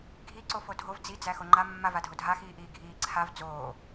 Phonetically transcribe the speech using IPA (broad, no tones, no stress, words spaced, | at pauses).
ɡʱiǀo fodʱov d͡zid͡zæ xoŋ͡ǃa mːavadʱo dʱaxiːʔiː ɡʱiːǀʰav d͡zoː